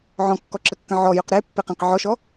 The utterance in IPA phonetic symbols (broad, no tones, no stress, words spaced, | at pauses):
ʕɔ̃kːɔǁəkːə̃ ʕɔjʊq ɾepːeqẽq ʕɔʃɔ